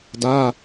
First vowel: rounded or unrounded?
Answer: unrounded